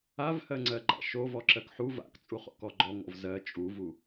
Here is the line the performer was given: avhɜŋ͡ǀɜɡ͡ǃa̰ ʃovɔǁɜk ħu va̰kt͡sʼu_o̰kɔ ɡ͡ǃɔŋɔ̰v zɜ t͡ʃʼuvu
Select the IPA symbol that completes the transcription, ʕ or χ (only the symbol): χ